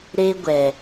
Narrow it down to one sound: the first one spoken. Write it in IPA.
ɾ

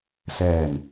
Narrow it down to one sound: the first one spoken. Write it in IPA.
s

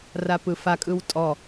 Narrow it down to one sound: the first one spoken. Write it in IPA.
r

